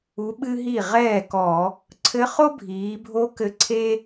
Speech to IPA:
u˧˥ɓɨ˥ɦi˥˩ ʁɛː˥˩kɔ˧˩˧ | ǀʰɘ˧˥χo˥bʱiː˩˧bʱo˧˥ kɘ˧˥ǀʰe˥

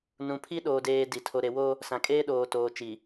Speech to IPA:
nũ˨pʰi˦ɗoː˨ deː˦di˨ tʰo˨ɾe˨wo˦ | sã˨kʼeː˦ ɗoː˨toː˨t͡ʃi˨

